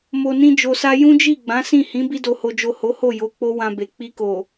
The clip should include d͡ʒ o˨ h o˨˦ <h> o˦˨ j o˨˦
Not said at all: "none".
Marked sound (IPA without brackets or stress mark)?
h